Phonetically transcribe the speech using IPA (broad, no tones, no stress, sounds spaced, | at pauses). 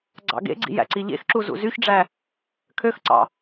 ɡ͡ǀ ɑ̰ ɡ ḛ ɡ͡ǀ ḭ j æ̰ ǀ i ʎ ḛ x ǁ u z ṵ z y ç ɖ͡ʐ æ | kʰ ø x ǀ ɑ̰